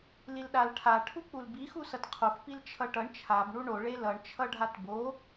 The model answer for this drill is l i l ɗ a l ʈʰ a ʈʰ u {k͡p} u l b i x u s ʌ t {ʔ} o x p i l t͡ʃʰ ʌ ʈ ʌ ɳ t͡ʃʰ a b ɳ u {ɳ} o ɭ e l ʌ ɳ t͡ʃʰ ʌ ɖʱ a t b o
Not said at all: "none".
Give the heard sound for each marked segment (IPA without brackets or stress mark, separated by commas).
k͡p, qʰ, ɳ